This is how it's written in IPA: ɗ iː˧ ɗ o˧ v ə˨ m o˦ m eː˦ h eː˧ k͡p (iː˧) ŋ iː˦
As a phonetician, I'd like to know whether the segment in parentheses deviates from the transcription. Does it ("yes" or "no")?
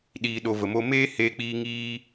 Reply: no